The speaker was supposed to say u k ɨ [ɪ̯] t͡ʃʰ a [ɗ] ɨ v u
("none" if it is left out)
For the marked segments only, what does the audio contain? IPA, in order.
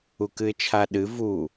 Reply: ɪ̯, ɗ

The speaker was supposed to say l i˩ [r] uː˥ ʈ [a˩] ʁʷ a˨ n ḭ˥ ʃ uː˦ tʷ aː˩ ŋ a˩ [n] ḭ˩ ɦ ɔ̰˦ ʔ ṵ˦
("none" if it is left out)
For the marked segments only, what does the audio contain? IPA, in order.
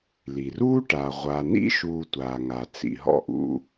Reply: r, a˨, t͡s

